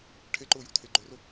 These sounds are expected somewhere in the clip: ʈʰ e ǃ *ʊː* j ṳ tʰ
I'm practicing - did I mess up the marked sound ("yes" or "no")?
no